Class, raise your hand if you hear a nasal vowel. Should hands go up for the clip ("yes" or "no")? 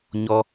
no